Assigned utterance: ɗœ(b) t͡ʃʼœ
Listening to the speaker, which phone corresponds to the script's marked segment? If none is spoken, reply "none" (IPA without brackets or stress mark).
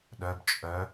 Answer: b